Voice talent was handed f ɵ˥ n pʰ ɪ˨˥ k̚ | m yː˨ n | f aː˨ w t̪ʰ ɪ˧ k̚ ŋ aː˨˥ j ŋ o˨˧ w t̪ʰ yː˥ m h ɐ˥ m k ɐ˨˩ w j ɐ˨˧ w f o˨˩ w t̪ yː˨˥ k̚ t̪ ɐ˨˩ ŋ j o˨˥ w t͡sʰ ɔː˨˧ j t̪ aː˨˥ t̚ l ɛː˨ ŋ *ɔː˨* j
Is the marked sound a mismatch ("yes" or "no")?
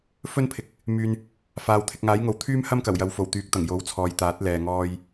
no